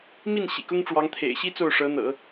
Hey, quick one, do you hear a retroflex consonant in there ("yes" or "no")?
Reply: yes